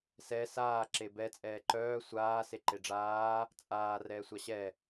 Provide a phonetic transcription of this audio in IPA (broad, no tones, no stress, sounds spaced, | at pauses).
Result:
s ɛ s aː ǁ e b ɛ t͡sʼ ɛː ǃ œː sʷ aː s e ǃ e ɖ͡ʐ aː | t͡sʼ aː r ɛː sʷ a ɕ ɛ